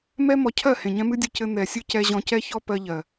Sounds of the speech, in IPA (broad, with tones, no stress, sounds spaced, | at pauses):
m ɛ˦ m ɔ˨˦ cʰ ɜ˦˨ h ẽ˨ ɲ ɛ̃˦ m ɨ˦ dʲ ɨ˧ c ɘ˧ n̪ ɛ˨ sʲ ɨ˦ c ɛ˧ ʑ ɔ̃˧ c ɛ˦ ç ɔ˦ p ɜ˧ ʎ ɜ˨